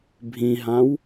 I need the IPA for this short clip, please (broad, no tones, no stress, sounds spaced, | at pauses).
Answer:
bʱ ĩ ɦ ã w